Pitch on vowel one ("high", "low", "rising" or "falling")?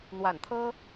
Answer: low